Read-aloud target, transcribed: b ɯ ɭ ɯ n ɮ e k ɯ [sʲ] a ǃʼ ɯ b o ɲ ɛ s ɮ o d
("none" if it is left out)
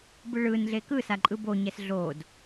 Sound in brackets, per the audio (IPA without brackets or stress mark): s